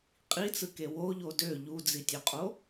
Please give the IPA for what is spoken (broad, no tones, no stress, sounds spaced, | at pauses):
qʼ i t͡s ɯ k e w o ʎ o d ø ʎ u d͡z i tʲ ø qʼ o